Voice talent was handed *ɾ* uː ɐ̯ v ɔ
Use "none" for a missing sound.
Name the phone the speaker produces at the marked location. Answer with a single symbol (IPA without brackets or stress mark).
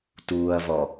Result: t